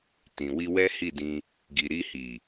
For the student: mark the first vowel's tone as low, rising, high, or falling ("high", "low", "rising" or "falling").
low